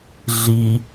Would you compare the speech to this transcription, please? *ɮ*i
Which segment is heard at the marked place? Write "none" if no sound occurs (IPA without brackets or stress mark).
ɮ